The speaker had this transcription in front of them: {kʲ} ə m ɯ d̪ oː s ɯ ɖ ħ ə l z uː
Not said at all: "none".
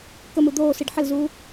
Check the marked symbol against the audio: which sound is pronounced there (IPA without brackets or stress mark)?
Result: k